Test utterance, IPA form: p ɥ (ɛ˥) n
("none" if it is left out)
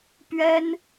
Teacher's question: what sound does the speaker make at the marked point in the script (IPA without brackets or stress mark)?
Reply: ɛ˥